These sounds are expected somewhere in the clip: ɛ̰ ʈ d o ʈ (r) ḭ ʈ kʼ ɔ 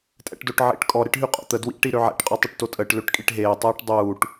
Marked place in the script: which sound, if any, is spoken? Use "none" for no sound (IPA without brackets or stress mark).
ʕ